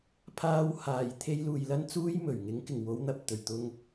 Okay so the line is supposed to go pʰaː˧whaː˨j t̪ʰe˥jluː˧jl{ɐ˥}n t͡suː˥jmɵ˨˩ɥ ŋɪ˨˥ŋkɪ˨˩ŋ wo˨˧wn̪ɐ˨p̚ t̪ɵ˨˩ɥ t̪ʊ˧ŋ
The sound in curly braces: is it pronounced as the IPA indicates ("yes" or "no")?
yes